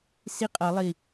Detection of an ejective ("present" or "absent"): present